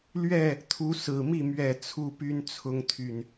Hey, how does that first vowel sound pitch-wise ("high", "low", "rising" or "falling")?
falling